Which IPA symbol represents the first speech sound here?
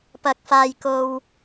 p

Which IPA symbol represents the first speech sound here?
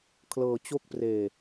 kʰ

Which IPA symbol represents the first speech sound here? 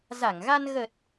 z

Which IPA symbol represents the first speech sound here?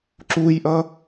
ǁ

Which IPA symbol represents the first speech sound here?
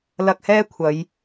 l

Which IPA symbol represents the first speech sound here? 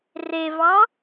r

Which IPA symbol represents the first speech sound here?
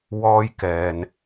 w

